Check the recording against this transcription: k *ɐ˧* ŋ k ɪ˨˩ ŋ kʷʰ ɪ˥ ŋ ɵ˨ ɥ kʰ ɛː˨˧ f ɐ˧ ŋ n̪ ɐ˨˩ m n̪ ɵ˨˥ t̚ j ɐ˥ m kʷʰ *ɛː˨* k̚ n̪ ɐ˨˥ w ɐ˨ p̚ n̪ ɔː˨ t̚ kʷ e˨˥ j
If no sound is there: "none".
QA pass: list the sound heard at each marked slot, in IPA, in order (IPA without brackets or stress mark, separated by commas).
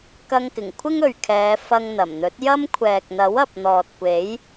ɐ˧, ɛː˨